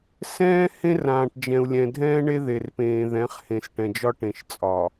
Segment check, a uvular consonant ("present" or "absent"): present